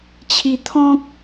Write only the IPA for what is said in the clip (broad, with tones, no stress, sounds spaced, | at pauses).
t͡ɕʰ i˧ t̪ʰ ɔ̃˦ k̚